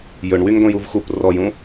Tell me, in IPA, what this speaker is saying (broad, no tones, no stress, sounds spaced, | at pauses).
j ɵ ɳ w y ŋ ɡʷ ĩ j u v x u p r ɔ j ũ